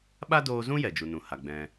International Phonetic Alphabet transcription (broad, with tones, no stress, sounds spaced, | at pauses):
ɓ a˦ d oː˧ z ũ˦ j ɛ˨ d͡ʒ u˨ n ũ˨ h a˨ ɡ͡b ɛ̃˧